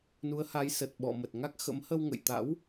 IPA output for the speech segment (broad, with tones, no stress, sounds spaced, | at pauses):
n u˨˦ ə̯ h a˨˦ j s ə˨˩ t̚ ɓ ɔ̰˧˨ m ə˨˩ t̚ ŋ a˦˥ k̚ x ə̰˧˥ m h ə˧ w ŋ ə̰˧˨ j t̪ a̰˧˥ w